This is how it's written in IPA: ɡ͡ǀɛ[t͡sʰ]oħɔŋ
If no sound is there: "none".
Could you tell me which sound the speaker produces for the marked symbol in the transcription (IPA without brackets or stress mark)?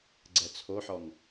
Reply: t͡sʰ